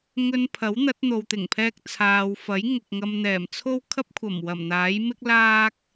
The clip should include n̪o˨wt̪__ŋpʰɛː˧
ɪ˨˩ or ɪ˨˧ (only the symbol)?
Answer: ɪ˨˩